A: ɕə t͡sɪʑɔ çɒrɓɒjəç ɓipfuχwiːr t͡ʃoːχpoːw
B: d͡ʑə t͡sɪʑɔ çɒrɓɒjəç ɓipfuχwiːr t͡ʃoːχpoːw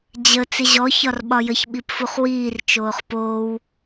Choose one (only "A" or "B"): B